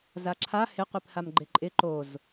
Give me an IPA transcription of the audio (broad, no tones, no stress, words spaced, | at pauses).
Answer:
zaǁʰa hɪqʷipham ɡ͡ǃɪǃʼɪ ǃoz